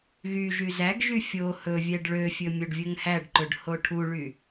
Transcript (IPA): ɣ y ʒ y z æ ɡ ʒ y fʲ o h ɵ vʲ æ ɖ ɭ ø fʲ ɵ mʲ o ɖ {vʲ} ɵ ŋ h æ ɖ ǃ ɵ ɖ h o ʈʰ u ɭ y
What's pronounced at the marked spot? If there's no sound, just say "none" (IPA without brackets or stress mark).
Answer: vʲ